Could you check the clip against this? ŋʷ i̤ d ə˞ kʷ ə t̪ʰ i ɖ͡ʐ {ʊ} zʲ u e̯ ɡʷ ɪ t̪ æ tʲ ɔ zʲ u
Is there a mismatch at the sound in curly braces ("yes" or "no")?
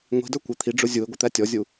no